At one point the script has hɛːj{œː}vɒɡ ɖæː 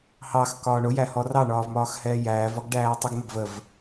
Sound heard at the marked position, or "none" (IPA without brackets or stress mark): æː